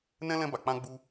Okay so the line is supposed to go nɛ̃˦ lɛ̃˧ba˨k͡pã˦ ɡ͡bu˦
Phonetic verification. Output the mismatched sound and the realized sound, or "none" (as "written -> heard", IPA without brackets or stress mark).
ã˦ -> ã˧